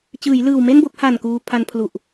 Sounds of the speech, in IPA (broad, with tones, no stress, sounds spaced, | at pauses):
t͡ɕ ɯː˩˦ j l ɯː˨˩ w m e˥˩ n b o˥˩ k̚ h a˨˩ n k uː˧ pʰ a˧ n pʰ l u˨˩ ʔ